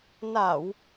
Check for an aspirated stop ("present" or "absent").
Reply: absent